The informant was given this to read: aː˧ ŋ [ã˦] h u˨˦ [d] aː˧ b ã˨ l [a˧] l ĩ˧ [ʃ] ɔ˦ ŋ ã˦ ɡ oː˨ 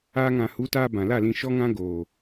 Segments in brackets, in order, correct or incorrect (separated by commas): incorrect, incorrect, incorrect, correct